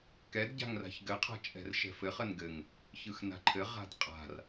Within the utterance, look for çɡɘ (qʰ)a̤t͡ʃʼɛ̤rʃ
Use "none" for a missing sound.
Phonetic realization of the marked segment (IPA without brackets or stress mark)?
qʰ